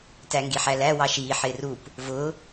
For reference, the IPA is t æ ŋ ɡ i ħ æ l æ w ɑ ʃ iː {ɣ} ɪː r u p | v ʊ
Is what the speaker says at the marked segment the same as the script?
no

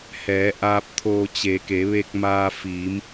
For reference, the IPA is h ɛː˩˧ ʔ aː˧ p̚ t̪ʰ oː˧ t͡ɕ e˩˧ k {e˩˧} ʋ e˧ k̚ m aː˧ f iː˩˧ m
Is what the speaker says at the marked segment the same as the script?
yes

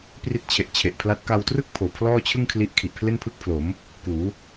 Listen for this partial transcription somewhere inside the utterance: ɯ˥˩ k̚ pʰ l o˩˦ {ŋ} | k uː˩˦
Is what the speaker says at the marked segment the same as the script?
no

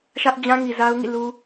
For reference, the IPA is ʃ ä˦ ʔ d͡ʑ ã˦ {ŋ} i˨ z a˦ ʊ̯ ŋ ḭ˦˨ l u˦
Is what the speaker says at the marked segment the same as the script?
yes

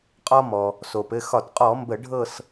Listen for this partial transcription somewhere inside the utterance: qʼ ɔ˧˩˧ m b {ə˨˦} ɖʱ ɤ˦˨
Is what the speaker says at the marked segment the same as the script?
no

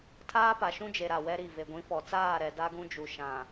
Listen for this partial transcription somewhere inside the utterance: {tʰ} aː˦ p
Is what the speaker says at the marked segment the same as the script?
yes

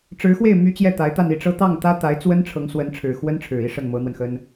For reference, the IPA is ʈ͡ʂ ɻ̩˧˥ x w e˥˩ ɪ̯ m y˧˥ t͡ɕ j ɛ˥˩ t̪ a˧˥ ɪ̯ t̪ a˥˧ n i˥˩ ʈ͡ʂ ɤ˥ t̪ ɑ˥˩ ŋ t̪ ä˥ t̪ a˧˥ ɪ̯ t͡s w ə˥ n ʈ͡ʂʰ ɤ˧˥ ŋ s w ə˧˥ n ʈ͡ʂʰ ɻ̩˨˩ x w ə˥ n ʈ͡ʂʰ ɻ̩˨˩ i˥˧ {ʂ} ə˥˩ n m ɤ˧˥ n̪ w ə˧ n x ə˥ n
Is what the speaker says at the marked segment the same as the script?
yes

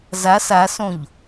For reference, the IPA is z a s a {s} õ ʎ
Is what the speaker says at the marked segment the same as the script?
yes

